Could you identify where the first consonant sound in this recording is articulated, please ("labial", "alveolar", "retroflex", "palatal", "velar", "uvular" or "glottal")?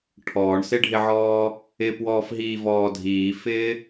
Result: retroflex